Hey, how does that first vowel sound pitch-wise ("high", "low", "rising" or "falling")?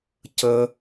high